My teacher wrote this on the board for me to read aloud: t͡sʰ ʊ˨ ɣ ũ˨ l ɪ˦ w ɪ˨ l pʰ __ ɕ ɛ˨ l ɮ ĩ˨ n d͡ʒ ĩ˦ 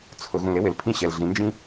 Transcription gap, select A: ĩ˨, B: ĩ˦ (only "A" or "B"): B